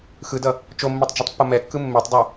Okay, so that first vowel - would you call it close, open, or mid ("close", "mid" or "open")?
close